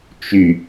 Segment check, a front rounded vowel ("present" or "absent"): present